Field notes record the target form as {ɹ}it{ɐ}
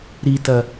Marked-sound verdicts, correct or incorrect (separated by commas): incorrect, correct